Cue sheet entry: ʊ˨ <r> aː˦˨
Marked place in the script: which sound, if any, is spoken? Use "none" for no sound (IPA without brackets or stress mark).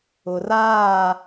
r